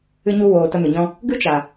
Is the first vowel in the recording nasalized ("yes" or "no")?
no